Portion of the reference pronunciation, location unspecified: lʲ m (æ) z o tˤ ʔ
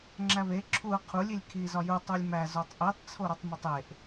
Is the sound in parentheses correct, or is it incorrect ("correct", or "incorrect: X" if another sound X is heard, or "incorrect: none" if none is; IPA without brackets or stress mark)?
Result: correct